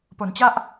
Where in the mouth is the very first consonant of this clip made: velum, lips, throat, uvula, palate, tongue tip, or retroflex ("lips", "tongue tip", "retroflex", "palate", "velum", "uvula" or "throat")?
lips